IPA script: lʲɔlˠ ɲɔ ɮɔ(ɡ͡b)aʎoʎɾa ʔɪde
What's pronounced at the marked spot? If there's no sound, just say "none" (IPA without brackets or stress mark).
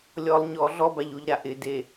b